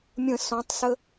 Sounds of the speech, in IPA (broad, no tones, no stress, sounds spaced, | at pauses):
mʲ ə̃ s ɔ̃ tˤ s ə